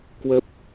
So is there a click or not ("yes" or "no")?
no